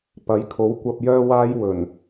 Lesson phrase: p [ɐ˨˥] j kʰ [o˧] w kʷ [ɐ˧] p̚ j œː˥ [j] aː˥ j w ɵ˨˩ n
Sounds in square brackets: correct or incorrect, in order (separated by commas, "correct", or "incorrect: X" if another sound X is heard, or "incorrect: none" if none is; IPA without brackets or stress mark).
correct, incorrect: o˨˥, correct, incorrect: w